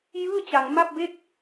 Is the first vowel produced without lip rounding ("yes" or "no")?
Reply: yes